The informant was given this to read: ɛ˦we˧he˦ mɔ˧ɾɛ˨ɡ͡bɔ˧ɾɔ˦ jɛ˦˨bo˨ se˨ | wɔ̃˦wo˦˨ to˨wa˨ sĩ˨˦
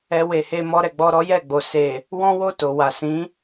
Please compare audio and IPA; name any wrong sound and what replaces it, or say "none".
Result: b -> ɡ͡b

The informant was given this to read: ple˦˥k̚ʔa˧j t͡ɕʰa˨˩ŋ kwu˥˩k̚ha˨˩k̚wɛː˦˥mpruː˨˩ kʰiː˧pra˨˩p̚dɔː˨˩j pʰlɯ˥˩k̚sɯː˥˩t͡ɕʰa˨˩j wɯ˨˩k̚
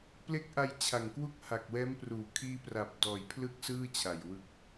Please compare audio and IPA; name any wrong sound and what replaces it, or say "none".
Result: none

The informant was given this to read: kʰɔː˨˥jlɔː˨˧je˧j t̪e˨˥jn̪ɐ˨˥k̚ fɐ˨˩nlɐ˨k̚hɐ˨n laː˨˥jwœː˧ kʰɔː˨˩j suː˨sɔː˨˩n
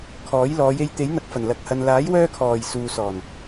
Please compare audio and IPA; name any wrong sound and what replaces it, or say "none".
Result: none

